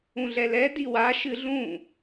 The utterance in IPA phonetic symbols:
ũ ɮ ɛ l ɛ d i w a ʃ ɨ ɮ ũ

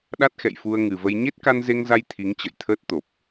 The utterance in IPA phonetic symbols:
ɗ a˦˥ t̚ x ɛ̰˧˨ j f u˧ ə̯ ŋ ɨ˨˩ v ə˧ j ɲ e˦˥ t̚ k a˧ n z e˧ ŋ z a˧ j t̪ʰ i˨˦ ŋ t͡ɕ ə̰˧˨ j t̪ʰ əː˦˥ t̚ t̪ o˨˩ p̚

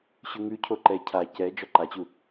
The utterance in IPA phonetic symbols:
ɕ ʉ ŋ ʉ cʰ o ǃ ɛ cʰ a c ɛ d͡ʒ ɔ ǃ a t͡ɕ u

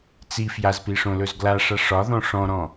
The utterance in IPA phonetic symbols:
t͡s i f j a z p i ʂ õ l ɵ z ɡ l a ʂ a ʂ ɒ ð ɔ̃ ʂ ɔ̃ ɾ ɔ̃

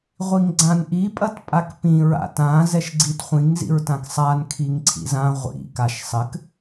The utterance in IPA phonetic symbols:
ʁʷ i ŋ ɡ͡ǀ ã n ʔ i pʼ ɐ t pʼ a k p ĩ ɹ a̰ t ã z ɛ ʃ ɡ͡ǀ i t χʷ ĩ ŋ z ḭ ɹ t ã k sˤ a n kʰ i ŋ ǀʰ ḭ z ã ʁʷ ḭ k a ʃ sˤ ɘ k

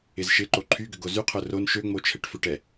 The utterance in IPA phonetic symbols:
ɪ z ʃ ɪ ǃ o ǃʰ y ɡ ʏ ɡ o z y qʰ œ r o n ʃ ø ŋ͡m o t͡ʃʰ ɛ ʈ f ʏ ʈ ɛ

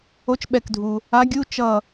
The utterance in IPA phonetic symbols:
o˧˥ t͡ʃ ɓ ɛ˧˩ k dʱ u˩ | a˧˥ ɡʲ u˧˥˧ t͡ʃ ʌ˧˩

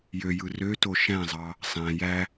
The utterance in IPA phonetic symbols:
j ø j ɯ r ø t o ʃ æ̃ zˤ ɑ | sˤ æ̃ j æ

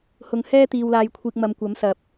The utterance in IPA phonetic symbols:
h ʊ˨ ŋ h ɛː˥ t̪ iː˨ w l aː˨ j kʷʰ iː˨ k̚ m ɐ˨ m kʷ ɐ˨˥ m s ɐ˨˥ p̚

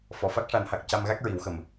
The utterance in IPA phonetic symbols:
f ɔ˨˩˨ f a˦˥ k̚ ʂ a˨˩˦ n h a˨˩ k̚ c a˧ m ɣ a˦˥ k̚ ɹ i˨˩˦ w x ə˨˩ m

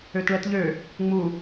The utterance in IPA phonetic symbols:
ø t ɭ ɛ t ʎ ø | ŋ͡m u

